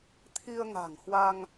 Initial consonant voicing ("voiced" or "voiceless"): voiceless